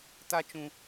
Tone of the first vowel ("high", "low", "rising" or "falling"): high